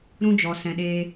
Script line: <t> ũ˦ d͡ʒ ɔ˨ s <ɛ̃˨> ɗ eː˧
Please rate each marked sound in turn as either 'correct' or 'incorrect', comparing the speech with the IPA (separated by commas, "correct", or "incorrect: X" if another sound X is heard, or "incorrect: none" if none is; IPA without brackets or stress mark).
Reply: incorrect: ɾ, correct